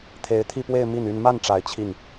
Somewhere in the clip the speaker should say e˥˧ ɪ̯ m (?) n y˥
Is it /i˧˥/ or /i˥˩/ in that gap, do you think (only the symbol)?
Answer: i˥˩